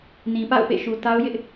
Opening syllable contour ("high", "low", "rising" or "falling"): low